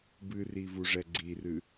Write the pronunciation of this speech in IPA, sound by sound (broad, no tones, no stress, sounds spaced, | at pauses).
b ɨ r i v u ʐ ɛ ɡ͡ǀ i r ɨ